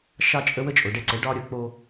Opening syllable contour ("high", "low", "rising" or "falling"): high